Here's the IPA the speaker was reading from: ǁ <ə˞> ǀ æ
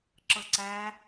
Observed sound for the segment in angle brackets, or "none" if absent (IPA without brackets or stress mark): ɤ